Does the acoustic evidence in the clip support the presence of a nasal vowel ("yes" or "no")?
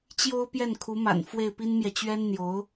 no